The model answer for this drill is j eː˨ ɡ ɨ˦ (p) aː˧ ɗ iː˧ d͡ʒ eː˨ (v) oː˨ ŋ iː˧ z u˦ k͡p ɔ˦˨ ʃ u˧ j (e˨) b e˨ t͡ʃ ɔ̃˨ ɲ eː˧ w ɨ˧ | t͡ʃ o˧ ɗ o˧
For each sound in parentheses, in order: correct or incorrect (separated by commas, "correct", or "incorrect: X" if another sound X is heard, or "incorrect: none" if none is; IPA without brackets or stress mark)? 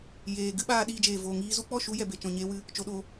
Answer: incorrect: ɓ, correct, incorrect: ɛ˨